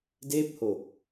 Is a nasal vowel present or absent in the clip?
absent